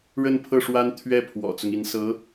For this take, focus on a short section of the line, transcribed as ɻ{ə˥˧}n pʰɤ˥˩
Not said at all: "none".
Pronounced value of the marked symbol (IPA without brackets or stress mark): ə˥˧